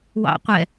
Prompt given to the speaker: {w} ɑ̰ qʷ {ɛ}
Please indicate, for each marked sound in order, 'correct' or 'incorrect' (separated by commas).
correct, correct